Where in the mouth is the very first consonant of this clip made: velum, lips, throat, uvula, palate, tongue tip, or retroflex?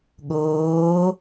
velum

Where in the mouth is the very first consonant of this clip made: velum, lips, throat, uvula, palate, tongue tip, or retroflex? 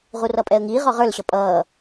uvula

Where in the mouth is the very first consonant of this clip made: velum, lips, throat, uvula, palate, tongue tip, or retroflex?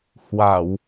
throat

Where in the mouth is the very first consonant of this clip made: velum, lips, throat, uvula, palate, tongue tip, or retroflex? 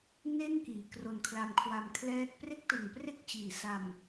tongue tip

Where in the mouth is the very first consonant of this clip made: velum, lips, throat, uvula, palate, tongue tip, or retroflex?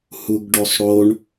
throat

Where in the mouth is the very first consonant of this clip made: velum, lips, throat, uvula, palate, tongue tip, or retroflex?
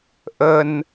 throat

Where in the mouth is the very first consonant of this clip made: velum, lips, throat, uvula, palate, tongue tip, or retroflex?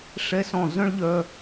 retroflex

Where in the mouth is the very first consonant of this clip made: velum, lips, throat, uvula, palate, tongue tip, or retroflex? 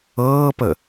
lips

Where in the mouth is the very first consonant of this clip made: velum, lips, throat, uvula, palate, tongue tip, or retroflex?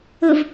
lips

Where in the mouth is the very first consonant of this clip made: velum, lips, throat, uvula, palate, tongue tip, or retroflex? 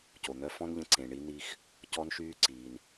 palate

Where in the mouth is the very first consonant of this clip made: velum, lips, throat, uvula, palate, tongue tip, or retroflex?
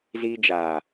tongue tip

